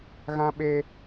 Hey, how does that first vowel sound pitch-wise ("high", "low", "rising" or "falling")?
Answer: high